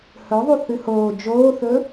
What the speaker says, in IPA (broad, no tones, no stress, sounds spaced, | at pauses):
h ɵ ðˤ u θ ɨ h oː d͡ʒ oː θ ɵ